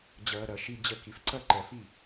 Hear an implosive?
no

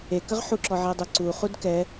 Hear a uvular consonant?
yes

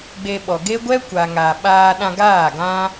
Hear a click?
no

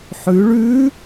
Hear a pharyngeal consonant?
yes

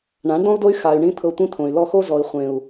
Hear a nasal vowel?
yes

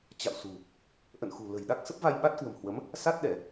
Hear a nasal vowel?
no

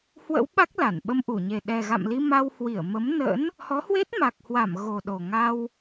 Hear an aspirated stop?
no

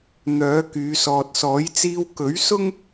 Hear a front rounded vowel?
yes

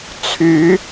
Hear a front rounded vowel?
yes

